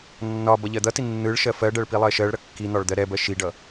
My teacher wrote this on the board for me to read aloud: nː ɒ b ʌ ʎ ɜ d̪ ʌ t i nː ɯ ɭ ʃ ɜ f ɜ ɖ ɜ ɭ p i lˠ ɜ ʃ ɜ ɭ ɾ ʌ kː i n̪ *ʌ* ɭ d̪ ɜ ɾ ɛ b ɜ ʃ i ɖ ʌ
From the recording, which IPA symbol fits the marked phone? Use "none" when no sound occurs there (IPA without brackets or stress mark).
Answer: ɒ